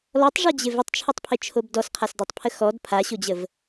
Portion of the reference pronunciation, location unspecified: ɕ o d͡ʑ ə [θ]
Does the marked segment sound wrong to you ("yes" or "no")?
yes